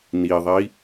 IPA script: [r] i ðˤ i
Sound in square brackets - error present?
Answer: yes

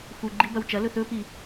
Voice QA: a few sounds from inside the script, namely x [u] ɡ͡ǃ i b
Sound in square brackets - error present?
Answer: no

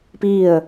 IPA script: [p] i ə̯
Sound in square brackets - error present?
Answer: no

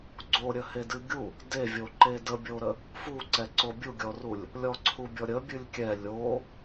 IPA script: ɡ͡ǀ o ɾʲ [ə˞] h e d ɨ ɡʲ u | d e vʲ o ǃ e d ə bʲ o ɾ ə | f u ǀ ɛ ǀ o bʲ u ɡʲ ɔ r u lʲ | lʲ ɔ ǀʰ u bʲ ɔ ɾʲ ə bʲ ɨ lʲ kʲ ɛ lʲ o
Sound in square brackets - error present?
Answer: yes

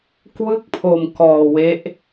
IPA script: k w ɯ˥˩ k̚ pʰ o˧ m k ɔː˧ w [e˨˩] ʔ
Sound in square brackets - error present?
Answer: yes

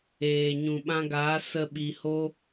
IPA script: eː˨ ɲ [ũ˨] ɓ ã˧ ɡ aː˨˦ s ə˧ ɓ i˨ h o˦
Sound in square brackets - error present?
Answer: no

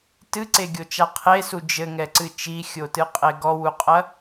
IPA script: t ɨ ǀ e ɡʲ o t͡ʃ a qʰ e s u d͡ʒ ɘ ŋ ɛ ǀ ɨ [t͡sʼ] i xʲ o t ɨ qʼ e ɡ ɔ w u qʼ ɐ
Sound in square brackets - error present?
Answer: yes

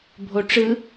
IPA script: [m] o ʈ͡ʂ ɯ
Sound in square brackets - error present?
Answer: yes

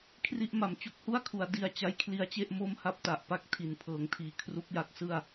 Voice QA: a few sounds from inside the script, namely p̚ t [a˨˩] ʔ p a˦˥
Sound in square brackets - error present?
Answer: no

